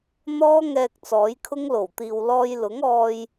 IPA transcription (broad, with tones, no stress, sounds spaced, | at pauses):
n̪ ɔː˥ ŋ ɛː˧ k̚ t͡s ɔː˨˥ j kʰ ʊ˥ ŋ l o˨˩ w t̪ iː˨ w l ɔː˧ j l ʊ˨˥ ŋ ɔː˧ j